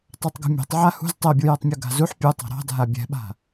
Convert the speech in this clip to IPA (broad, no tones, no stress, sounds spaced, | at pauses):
tˤ a tˤ ɡ ṳ mʲ ɛ̤ tˤ ʕ a h ṳ z tˤ ɛ bʲ u j ɛ tˤ mʲ u ɡ a̤ z u ħ pʲ u tˤ a̤ ɾ ɑ̤ dʱ a bʲ ɛ̤ ɓ a̤